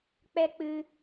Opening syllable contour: high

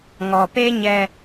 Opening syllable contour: low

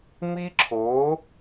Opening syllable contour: high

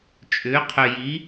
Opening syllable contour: rising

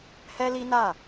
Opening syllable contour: high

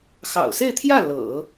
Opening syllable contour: low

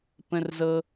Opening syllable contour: low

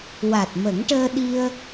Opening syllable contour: low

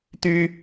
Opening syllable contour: high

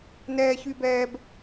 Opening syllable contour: high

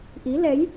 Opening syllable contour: rising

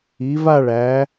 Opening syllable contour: rising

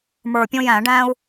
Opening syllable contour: low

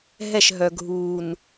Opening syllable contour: falling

